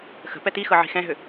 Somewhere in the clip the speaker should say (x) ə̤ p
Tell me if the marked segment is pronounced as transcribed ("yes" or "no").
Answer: yes